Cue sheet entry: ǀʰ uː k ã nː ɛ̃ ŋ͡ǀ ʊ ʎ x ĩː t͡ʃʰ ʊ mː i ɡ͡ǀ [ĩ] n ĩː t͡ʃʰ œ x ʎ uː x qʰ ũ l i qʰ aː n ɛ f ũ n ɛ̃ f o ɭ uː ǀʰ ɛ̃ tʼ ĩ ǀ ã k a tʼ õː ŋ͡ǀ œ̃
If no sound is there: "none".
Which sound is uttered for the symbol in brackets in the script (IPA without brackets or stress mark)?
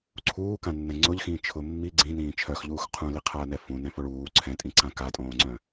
ĩ